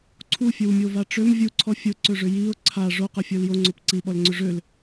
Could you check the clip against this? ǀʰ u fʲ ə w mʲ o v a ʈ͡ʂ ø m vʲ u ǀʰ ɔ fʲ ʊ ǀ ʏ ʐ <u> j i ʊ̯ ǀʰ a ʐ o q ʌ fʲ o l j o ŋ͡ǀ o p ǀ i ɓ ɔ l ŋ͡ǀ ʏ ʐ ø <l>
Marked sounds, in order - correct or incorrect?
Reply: incorrect, correct

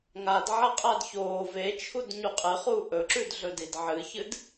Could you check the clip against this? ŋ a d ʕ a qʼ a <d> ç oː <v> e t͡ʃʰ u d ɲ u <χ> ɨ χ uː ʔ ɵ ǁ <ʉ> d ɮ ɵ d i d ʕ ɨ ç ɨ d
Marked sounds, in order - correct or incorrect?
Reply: correct, correct, incorrect, correct

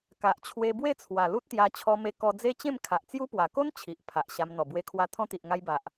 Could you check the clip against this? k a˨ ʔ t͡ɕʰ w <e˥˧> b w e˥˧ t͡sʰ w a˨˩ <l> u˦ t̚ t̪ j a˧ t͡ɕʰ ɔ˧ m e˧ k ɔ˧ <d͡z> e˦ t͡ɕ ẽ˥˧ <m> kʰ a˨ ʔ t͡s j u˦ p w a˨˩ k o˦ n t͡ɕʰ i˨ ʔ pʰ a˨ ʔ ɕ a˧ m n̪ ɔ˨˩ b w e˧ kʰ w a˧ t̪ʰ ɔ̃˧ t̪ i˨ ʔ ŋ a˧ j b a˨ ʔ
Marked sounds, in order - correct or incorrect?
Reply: incorrect, correct, correct, correct

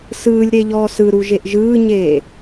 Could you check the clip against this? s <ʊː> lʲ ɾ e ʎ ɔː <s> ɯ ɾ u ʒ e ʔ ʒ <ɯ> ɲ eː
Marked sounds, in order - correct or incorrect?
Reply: incorrect, correct, incorrect

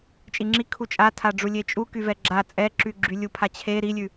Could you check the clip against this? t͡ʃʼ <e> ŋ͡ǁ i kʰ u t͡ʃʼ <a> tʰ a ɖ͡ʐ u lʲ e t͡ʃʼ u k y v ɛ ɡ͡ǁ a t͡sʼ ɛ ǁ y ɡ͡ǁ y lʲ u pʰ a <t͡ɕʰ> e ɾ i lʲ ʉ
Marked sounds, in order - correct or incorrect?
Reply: incorrect, correct, correct

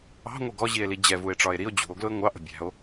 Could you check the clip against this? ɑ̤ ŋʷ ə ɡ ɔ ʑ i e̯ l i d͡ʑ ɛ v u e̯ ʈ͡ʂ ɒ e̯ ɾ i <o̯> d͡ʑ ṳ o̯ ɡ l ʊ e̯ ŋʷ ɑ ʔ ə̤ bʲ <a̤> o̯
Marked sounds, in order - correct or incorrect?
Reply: correct, incorrect

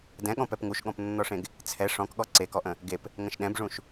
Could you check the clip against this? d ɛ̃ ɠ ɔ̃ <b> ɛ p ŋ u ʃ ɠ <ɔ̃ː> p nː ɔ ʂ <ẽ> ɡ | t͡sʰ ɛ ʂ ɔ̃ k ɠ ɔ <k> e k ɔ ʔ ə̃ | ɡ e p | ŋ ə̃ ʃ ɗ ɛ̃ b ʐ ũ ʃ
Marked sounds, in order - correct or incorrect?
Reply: incorrect, incorrect, correct, incorrect

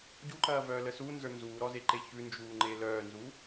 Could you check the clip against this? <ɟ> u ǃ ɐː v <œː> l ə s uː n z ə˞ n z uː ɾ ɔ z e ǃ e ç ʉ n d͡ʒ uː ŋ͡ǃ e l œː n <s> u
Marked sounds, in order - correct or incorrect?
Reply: correct, correct, incorrect

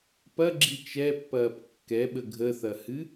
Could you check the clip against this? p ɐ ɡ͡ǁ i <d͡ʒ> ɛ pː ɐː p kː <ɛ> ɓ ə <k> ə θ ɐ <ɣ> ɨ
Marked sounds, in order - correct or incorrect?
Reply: incorrect, correct, incorrect, incorrect

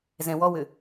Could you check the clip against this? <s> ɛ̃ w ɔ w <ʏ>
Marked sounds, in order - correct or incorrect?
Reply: incorrect, correct

